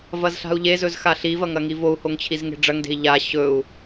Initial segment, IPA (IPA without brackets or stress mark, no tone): v